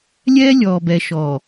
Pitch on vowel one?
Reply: high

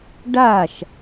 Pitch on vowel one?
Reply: falling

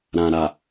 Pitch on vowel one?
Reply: low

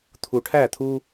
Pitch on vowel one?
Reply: low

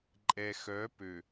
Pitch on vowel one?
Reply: low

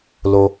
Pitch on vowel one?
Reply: low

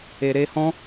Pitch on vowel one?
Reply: low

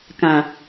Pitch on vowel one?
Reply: low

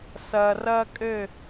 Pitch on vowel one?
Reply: low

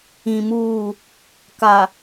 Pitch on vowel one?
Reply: low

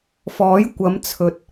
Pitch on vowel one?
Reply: rising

